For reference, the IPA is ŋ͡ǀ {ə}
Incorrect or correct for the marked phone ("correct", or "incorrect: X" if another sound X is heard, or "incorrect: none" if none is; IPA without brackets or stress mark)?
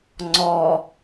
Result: incorrect: ɔ